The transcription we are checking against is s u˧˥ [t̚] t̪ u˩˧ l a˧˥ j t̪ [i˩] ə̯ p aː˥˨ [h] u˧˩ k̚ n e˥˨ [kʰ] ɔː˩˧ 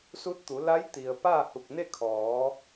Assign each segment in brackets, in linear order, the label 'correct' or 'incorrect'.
correct, correct, correct, correct

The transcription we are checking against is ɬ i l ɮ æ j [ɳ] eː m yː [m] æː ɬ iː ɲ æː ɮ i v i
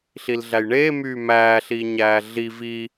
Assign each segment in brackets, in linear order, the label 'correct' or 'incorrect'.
correct, correct

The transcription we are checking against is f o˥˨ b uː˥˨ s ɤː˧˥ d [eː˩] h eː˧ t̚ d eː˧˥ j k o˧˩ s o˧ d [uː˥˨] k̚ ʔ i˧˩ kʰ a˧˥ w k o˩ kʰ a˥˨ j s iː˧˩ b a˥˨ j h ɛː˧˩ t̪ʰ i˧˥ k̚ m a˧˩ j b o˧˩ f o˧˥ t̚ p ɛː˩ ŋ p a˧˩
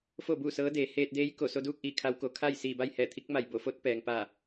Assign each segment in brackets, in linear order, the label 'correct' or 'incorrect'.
incorrect: eː˩˧, correct

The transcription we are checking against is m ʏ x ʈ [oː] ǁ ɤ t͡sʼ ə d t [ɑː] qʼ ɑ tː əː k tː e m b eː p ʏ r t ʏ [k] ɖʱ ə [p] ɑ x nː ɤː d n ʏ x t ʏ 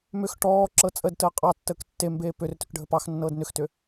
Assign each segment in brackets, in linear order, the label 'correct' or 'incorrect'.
incorrect: ɔː, incorrect: əː, correct, correct

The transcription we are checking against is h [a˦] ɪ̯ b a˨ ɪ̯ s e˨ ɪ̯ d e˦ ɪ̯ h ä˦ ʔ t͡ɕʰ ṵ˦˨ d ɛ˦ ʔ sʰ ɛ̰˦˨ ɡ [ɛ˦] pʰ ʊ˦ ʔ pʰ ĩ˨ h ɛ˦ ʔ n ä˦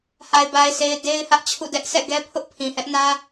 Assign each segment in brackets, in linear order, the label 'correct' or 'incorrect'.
incorrect: a˨, correct

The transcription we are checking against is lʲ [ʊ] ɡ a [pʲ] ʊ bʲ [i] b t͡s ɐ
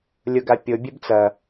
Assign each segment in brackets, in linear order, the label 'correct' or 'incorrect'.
correct, correct, incorrect: e

